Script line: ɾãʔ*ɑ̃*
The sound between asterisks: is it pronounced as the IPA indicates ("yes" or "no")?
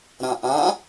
no